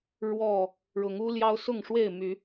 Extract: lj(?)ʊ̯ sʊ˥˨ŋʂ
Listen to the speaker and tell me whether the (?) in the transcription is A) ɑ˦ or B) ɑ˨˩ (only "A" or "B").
A